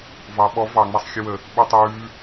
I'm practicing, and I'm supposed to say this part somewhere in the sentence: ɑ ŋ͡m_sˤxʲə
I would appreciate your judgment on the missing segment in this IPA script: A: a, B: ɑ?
A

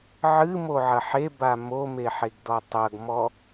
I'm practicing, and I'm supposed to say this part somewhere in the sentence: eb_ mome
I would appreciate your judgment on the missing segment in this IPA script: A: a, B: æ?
A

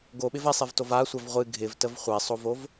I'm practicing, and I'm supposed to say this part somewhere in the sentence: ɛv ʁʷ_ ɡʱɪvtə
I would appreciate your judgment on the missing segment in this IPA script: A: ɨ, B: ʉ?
A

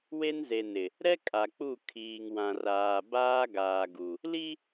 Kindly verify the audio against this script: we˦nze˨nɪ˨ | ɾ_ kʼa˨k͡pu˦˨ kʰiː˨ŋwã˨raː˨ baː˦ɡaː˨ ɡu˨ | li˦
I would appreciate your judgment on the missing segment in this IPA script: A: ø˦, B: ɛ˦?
B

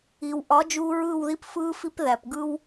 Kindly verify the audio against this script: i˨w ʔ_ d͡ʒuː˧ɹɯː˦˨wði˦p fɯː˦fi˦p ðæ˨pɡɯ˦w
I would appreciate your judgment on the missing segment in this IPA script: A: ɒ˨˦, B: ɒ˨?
A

